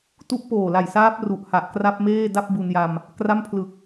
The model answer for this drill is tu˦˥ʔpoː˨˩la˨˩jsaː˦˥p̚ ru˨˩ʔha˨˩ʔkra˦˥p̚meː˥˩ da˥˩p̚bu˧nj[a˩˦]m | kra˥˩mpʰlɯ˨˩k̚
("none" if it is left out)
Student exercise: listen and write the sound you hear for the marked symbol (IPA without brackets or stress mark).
a˧